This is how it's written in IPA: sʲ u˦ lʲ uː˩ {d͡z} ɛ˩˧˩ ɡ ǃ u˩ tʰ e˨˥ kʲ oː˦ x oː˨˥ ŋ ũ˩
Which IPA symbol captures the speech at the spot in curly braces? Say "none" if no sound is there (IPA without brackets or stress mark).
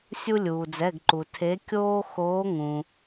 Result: d͡z